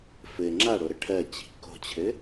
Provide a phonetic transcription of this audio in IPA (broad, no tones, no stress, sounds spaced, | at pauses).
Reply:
f ɘ ŋ͡ǁ a ɽ o ɾ ə ʈʰ ɜ t͡ɕ i̤ k o̤ t͡ɕʰ ɘ